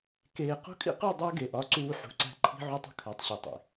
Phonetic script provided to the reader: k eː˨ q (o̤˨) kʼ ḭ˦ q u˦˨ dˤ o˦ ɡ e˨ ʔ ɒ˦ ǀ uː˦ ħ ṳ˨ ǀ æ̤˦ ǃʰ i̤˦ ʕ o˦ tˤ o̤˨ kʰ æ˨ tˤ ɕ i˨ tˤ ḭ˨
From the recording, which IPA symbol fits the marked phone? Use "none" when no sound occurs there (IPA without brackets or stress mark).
o̤˦